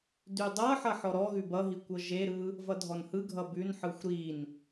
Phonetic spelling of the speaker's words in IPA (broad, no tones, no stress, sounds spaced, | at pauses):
d ʉ dˤ ɤ ħ ʌ ħ ɔ ɾ ɔ ɣ ʉ b ʌ ɦ i kʷ ɤ ʒ e ɾ ɯ | v ʌ dʱ ɔ n h ɯ ɡʱ ʌ b ʉ n ħ ɯ xʷ ɾ i n